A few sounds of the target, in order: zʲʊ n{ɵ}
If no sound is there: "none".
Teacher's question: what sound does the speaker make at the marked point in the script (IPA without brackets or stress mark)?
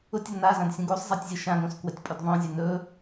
ɵ